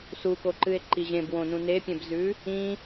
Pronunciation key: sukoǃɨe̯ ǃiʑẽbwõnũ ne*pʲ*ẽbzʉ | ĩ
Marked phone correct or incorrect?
correct